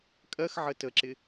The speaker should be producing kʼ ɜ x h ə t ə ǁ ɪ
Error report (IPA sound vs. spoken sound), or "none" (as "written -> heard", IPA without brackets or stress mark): h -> ʕ